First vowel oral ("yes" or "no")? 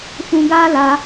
no